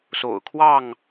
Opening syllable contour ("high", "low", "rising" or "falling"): low